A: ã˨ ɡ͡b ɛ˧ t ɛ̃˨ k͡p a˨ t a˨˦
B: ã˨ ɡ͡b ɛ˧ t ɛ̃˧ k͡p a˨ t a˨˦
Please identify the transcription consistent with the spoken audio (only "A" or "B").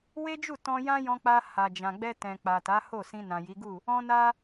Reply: A